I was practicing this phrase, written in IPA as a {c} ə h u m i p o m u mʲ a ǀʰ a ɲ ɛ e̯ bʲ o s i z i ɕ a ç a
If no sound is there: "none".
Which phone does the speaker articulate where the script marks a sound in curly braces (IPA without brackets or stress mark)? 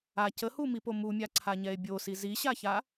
c